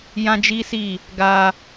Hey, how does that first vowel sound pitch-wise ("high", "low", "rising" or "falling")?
high